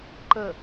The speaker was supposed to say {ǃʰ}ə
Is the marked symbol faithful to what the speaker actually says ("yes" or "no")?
no